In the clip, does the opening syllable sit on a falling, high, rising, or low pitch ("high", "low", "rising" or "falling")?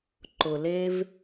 low